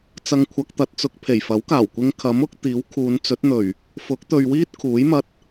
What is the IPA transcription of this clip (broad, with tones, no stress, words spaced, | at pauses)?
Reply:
t͡sɐ˧ŋkʷʰɐ˧k̚t̪ɐ˧t̚t͡sʊ˧k̚ pʰe˨˩jfɐ˨˥wkaː˨˩wkʷɪ˧ŋ kʰɐ˨˥mʊ˨˥k̚ t̪iː˨˥wkʰuː˨˧nt͡sɵ˨˥t̚n̪ɵ˨˩ɥ | fʊ˨˥k̚t̪ɵ˨ɥwiː˥t̚ kʰuː˨˥jmɐ˧t̚